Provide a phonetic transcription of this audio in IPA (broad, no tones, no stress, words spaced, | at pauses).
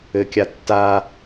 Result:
ɘkʲa tːa